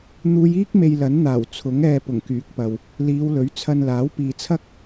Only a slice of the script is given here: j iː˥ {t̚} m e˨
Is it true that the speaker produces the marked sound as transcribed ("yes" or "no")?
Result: no